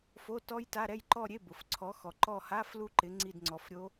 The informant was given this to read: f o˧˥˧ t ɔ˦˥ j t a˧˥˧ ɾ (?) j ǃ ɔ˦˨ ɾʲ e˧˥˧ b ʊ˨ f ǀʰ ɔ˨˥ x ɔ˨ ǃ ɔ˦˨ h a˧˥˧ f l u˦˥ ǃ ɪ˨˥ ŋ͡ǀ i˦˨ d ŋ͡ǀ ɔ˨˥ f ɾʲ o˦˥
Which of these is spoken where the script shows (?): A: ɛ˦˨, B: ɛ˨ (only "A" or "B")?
A